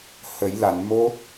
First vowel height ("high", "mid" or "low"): mid